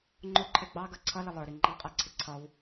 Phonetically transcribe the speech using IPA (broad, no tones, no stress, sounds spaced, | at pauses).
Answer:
ŋ͡ǃ ʊ ǃʰ ɛ ɡ͡b ɑ ɡ ʌ ǀʰ ʌ l ɪ lˠ ə˞ ɾ i ŋ͡ǃ ɑ qʼ æ ǀʰ ɪ ǀʰ ʌ w